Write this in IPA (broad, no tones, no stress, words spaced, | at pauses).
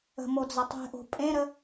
ə̤mo d͡zətˤe̤ʔo̤ pʼẽɾə